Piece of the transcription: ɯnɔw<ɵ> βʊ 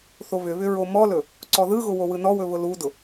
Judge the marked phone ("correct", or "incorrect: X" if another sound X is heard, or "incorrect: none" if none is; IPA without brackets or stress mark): correct